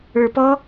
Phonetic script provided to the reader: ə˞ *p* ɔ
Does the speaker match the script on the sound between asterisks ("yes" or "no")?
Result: yes